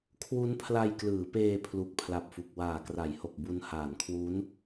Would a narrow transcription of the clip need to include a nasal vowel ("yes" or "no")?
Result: no